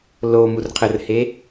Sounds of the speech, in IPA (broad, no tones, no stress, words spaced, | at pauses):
lo murqʰərhe